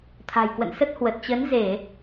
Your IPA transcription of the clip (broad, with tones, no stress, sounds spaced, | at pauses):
t̪ʰ a̤˨˩ j k w ə̰˧˨ n s ə˦˥ t̚ h w ə˨˩ t̚ t͡ɕ ə˨˦ n z e˧˩˨